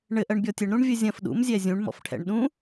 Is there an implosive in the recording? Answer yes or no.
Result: yes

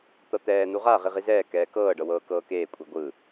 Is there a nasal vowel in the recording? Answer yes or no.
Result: no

